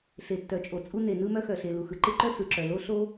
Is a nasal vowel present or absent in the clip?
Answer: absent